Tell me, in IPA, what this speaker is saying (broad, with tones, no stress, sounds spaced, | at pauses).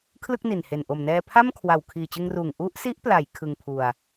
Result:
kʰ l ɯ˥˩ k̚ n i˨˩ n h e˨˩ n ʔ o˨˩ m n ɛː˧ pʰ a˥˩ m kʰ w a˨˩ w kʰ iː˨˩ t͡ɕ ɯ˧ ŋ r uː˨˩ ŋ ʔ u˦˥ ʔ s i˦˥ ʔ p l a˩˦ j kʰ ɯ˧ ŋ pʰ u˧ a̯